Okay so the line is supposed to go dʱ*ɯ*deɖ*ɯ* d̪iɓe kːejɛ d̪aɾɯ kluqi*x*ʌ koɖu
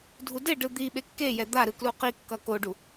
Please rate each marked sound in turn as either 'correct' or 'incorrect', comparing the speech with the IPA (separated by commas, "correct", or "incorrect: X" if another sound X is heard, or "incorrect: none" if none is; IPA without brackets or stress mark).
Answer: incorrect: u, correct, incorrect: kː